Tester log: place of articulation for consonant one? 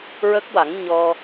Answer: alveolar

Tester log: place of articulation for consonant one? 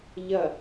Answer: palatal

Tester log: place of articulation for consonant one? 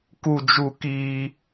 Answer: velar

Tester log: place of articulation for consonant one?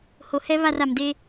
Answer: glottal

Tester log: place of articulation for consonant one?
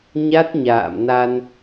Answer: palatal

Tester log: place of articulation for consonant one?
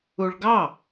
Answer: retroflex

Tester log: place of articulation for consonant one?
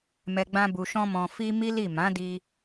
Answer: labial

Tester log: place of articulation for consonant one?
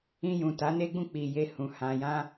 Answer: palatal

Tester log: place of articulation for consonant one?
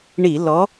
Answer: retroflex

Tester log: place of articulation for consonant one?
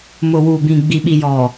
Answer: labial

